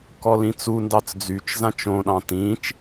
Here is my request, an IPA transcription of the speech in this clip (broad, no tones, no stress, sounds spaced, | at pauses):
k ɔ l ĩ t͡s u n d ɑ t͡s d͡z y t͡ʃ z ã t͡ʃ õ ɗ ɑ̃ t ĩ t͡ʃ